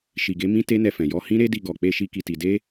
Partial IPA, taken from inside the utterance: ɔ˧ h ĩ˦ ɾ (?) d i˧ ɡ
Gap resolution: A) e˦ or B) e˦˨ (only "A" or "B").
A